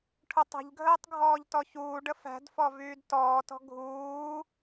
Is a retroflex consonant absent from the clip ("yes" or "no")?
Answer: no